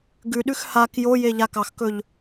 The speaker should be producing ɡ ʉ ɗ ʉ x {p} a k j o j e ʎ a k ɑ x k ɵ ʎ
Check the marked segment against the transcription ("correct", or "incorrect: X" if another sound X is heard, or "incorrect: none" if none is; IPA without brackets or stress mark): incorrect: h